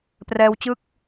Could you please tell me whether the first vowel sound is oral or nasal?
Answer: oral